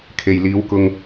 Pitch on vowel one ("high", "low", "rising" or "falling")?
low